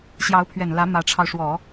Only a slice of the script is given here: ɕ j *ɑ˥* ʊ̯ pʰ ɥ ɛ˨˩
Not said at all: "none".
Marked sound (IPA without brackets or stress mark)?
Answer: ɑ˧˥